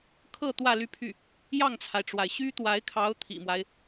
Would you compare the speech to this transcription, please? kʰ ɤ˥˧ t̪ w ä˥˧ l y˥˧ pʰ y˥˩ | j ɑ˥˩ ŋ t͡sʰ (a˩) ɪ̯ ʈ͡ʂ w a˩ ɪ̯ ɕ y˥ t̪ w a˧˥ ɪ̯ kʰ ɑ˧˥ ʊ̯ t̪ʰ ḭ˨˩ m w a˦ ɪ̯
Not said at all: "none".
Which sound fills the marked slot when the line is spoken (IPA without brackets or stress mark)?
a˩